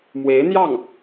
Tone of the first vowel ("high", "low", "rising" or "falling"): rising